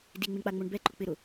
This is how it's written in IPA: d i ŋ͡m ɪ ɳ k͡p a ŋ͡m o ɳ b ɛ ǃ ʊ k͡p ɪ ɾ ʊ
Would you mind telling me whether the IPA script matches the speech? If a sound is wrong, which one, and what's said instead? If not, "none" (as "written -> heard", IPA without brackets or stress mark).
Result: none